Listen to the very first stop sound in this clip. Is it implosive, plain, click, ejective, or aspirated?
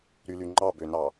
click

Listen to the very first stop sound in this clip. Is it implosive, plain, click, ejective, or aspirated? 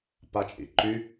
plain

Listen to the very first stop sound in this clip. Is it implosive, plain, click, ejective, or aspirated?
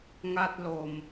plain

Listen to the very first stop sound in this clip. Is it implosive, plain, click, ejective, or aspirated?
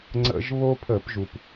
click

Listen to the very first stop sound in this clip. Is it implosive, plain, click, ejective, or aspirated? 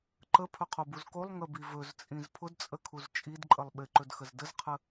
click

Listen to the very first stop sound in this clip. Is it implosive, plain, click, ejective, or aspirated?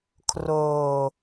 aspirated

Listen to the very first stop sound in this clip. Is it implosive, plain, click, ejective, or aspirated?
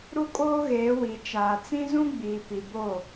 ejective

